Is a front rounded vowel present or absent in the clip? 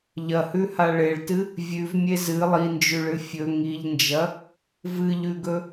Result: absent